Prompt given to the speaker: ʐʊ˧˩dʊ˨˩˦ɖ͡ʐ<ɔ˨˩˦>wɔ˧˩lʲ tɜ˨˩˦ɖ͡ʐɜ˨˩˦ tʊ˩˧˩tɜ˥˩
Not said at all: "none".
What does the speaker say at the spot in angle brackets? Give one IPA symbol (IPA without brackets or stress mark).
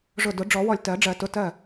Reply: ɔ˨˩˦